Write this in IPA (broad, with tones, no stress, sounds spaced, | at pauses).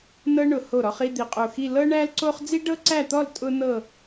n ɤ˥ ɳ ʊ˧˩ h o˧˩ ɾ ɔ˧ χ i˥˧ d̪ i˧˩ qʼ o˧˩ x i˥˧ l ɤ˥ ɳ æ˥ l ǀ o˥ χ d͡z i˥ ɖ ɤ˥ ǀ æ˥˧ t̪ ɔ˥˧ l tʼ ʊ˥ n̪ ɤ˥˧